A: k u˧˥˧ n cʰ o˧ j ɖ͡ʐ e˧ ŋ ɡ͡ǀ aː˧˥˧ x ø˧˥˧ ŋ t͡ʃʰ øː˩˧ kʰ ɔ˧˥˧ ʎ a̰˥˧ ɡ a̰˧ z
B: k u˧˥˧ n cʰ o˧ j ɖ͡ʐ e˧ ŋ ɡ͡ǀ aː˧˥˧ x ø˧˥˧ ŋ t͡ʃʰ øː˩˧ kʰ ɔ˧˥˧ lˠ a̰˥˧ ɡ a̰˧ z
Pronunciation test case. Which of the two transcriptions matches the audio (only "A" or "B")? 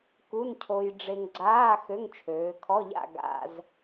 A